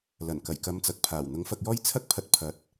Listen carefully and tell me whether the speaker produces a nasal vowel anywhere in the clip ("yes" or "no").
no